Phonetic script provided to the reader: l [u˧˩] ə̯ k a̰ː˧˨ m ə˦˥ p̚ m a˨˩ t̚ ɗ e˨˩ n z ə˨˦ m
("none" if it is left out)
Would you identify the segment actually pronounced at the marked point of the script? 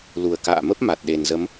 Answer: u˨˩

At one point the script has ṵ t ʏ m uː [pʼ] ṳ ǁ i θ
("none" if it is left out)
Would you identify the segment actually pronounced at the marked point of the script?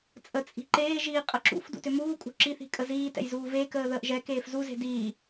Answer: kʼ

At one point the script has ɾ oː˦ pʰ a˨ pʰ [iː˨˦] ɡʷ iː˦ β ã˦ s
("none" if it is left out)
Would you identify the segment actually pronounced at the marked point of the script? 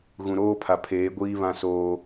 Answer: eː˨˦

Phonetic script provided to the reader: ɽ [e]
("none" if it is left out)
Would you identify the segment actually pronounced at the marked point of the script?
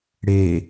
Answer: e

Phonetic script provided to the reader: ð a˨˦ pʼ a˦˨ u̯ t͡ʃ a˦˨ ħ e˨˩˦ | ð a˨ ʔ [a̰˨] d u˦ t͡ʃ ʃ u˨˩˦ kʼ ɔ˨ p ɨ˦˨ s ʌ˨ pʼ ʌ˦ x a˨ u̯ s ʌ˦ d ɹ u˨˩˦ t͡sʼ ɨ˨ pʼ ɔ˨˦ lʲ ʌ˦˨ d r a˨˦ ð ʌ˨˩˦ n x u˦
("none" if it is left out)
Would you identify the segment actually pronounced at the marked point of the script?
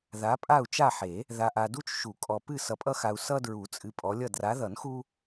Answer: a˨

